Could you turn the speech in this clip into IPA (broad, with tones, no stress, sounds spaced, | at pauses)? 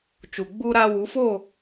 t͡ʃ u˨ ɡ͡b u˦ ɾ a˦ w u˨˦ f o˦˨